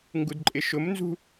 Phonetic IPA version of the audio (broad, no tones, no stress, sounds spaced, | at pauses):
ŋ ɡ u d ǃʼ ɪ ʃ ʊ m n z ṳ